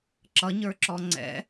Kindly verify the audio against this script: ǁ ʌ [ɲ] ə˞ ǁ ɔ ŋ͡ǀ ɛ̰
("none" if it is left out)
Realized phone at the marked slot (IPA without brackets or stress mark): ɲ